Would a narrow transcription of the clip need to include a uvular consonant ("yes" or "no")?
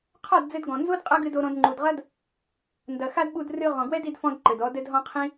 yes